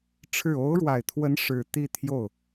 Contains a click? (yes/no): no